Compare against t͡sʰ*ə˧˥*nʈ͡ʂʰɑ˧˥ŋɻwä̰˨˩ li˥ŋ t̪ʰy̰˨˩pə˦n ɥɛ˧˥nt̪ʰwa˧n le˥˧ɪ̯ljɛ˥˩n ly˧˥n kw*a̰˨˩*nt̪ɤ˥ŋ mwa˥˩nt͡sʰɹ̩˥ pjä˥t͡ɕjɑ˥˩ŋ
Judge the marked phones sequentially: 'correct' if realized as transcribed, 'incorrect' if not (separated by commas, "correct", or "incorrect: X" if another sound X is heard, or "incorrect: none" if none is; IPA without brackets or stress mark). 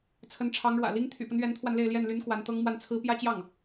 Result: correct, incorrect: a˧˥